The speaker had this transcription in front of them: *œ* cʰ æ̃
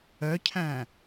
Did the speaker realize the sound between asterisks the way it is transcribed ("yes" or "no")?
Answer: yes